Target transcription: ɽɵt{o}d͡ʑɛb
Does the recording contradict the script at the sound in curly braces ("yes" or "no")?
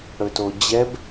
no